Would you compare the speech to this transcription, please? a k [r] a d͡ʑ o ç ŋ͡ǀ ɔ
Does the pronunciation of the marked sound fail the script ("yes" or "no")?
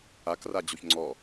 no